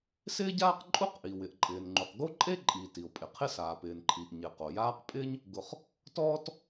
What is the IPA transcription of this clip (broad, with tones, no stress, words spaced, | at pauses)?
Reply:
sɪː˥ɟaː˥qǃʼu˥qʔi˩ wɪ˩ʔǃʼɪː˩nŋ͡ǃu˩q ɡo˥ǃʼe˥ ǃʼi˩ ti˩o̯pʼɪ˩qʰɪ˥ saː˩pɪː˩nǃʰi˩ʔ ɲɪ˩qo˩jaː˥q pʼɪː˥ɲ | ɡʊ˩χ | tɔː˥t